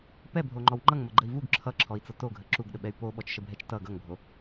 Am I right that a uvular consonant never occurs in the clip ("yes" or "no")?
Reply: yes